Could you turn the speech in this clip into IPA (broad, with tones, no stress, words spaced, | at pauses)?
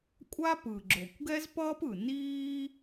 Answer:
kʷʼa˥pɯ˩ ɡ͡ǁo˩kʷɡɛ˥zpʌː˥pɯ˩ niː˥